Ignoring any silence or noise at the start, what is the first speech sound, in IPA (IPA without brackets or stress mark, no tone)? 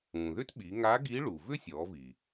ũː